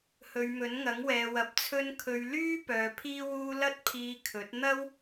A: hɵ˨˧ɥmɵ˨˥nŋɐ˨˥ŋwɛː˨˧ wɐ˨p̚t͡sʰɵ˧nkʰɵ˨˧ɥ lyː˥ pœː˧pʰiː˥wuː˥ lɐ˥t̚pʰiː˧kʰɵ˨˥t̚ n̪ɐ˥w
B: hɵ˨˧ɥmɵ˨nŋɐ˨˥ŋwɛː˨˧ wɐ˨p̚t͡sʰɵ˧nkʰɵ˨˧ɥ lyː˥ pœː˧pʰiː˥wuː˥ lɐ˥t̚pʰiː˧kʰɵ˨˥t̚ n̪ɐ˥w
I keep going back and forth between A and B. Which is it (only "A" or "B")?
A